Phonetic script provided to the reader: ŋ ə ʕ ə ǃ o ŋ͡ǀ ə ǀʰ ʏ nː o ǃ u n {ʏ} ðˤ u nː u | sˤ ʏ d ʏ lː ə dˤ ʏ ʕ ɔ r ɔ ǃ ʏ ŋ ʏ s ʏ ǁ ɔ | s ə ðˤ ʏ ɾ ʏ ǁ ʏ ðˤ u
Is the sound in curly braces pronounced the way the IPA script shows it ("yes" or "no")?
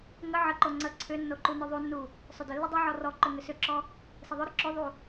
yes